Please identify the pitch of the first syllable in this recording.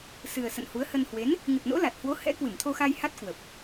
low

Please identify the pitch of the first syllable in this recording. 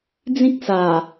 high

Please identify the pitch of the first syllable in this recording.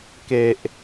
low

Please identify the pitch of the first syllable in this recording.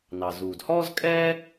low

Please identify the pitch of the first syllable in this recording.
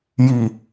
low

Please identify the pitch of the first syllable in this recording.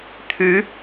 rising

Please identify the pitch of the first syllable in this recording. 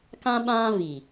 high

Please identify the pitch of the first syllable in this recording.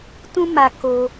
high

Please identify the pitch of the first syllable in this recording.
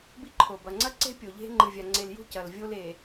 high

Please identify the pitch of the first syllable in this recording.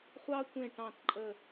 high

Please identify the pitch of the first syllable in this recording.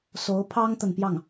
rising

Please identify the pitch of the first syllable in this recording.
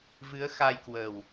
rising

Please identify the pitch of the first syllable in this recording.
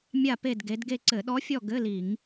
falling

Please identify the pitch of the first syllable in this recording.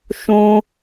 high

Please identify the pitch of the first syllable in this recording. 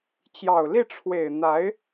low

